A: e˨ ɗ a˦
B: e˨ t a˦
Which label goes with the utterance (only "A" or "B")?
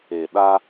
A